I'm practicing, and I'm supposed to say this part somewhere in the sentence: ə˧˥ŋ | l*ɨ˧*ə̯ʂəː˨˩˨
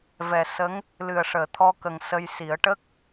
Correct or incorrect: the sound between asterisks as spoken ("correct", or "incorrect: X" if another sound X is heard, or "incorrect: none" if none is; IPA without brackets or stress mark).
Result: incorrect: ɨ˨˩